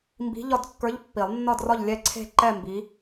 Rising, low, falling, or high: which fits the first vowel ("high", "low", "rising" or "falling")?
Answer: rising